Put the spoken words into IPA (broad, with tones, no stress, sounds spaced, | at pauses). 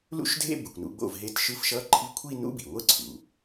l ṵ˥˧ ʃ dʱ ḛ˥˧ b ɯ˩ kʷ n ṵ˨˦ ɡ͡b o̰˥˩ v ɦ e˧˥˧ t ʃ ɯ˧˥˧ f ʃ ʌ˧˥˧ ǃʰ i˧˥˧ kʷʰ i˥˧ n ṵ˧˥˧ b i˩ ŋʷ ɯ˥˩ ǀʰ ṵ˩